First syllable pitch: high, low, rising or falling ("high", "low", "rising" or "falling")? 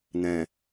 low